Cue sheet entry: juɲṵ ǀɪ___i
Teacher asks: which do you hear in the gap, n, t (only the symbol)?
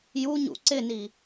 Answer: n